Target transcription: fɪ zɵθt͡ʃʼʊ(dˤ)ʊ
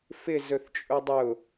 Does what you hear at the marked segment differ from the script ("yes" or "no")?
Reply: no